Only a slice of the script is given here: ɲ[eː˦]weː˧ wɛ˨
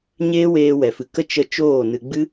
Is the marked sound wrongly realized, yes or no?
no